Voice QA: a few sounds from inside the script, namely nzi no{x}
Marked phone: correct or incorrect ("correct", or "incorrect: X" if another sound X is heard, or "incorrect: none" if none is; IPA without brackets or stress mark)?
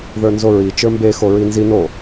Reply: incorrect: none